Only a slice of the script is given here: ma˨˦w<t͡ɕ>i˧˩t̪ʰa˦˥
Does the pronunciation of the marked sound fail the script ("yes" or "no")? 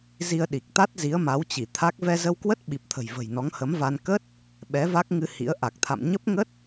no